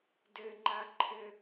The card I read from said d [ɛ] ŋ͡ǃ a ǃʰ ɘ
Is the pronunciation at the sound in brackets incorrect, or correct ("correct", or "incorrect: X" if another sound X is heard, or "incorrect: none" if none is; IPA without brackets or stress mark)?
incorrect: ɘ